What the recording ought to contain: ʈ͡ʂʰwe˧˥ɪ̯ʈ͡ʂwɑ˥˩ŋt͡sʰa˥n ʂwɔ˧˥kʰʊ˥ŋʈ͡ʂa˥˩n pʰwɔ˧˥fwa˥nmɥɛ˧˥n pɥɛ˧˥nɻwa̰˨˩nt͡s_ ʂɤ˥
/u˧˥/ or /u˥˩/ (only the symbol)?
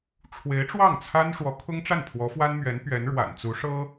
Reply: u˧˥